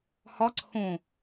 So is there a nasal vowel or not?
yes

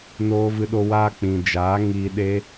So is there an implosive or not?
yes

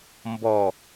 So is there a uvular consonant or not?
no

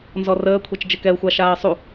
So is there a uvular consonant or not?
no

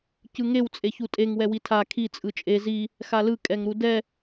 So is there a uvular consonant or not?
no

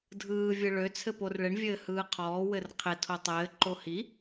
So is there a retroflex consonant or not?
yes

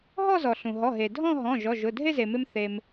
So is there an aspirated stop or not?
no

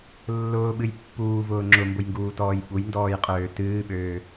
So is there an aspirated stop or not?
no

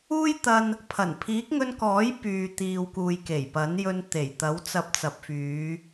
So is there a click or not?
no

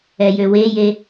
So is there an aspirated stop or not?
no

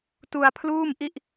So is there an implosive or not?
no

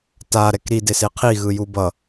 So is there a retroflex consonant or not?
no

